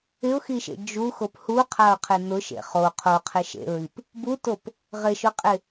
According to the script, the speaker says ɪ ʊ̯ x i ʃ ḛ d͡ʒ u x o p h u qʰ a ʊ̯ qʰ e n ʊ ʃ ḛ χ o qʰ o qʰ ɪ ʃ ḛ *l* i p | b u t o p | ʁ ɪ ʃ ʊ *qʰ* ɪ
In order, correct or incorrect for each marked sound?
incorrect, incorrect

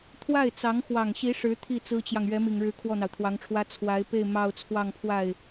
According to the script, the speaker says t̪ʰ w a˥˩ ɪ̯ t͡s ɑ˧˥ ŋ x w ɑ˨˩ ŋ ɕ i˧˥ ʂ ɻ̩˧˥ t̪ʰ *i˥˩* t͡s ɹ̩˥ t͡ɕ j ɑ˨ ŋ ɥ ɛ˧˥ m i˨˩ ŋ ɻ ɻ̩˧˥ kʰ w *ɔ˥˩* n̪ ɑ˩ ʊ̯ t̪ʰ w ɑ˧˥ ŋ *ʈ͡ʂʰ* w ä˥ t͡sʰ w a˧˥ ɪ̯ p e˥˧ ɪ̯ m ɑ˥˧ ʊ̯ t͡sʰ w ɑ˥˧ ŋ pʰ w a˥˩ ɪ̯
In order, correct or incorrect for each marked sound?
correct, correct, correct

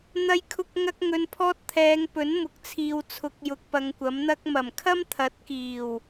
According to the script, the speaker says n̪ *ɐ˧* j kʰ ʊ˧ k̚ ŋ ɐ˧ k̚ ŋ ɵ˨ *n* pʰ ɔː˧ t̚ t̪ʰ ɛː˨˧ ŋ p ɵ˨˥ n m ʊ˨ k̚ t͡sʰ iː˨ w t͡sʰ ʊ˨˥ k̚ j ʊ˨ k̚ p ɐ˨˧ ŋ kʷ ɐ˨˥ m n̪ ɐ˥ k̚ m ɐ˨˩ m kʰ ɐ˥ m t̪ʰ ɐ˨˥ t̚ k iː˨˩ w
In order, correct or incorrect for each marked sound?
correct, correct

